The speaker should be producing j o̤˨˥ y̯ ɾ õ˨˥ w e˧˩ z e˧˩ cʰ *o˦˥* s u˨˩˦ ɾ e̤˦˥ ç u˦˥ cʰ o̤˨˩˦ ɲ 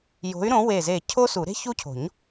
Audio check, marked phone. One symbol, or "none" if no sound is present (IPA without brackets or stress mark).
o˦˥